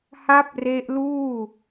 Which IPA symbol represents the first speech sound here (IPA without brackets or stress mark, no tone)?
h